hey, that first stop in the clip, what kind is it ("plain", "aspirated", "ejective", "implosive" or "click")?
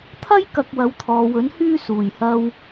aspirated